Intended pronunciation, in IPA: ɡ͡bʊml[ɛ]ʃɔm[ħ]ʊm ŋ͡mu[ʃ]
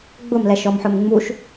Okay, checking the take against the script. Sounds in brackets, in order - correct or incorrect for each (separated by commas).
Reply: correct, correct, correct